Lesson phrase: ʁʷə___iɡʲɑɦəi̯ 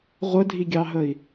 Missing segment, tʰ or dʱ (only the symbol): dʱ